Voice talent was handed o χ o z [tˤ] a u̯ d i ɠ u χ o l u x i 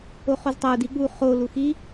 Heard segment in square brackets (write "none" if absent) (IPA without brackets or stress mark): tˤ